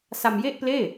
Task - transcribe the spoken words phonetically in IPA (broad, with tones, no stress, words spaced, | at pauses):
sa˧mje˥˩ʔpleː˥˩